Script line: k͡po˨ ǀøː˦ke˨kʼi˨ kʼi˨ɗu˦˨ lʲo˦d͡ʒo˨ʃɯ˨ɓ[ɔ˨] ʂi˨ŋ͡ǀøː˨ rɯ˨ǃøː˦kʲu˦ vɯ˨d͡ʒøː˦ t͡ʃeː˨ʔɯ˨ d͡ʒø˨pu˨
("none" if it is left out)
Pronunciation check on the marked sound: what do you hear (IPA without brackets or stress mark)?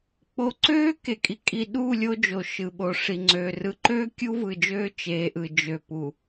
o˨